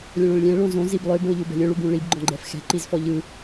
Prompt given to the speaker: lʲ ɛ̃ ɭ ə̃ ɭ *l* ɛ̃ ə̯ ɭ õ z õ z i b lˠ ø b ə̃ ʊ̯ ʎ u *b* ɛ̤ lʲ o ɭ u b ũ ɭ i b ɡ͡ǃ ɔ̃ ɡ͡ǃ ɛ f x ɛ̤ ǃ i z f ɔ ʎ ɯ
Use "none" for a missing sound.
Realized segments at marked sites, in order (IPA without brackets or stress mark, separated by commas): lʲ, b